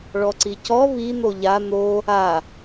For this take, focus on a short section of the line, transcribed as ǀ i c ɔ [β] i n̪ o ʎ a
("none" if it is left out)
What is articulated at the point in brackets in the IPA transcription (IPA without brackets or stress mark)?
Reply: β